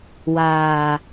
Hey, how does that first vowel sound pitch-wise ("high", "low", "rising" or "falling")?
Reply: low